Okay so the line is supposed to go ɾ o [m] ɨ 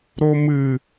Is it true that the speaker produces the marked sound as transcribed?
yes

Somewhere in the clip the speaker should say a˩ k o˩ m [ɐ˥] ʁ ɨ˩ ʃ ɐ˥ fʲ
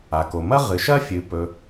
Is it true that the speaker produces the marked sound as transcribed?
yes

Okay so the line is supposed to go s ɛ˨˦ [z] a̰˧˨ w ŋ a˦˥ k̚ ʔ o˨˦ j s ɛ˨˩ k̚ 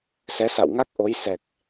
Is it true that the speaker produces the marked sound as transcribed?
no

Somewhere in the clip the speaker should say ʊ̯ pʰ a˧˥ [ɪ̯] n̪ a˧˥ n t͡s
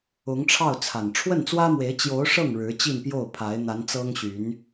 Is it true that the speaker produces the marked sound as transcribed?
yes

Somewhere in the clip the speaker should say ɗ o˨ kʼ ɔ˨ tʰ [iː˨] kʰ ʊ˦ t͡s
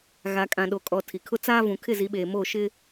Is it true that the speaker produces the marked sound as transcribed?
no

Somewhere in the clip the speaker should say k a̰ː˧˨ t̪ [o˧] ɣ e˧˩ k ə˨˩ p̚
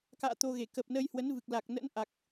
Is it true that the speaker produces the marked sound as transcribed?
yes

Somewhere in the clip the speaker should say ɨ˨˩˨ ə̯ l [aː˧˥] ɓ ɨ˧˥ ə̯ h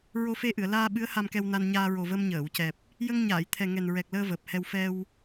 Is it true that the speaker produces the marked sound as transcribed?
no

